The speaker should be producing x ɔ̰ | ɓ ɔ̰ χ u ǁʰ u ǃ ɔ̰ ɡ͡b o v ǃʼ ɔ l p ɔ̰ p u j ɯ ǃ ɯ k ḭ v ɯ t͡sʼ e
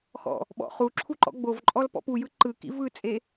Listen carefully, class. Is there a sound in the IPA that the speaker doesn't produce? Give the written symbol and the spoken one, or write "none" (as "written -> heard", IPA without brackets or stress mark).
none